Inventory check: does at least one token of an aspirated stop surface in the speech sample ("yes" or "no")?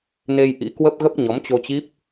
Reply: no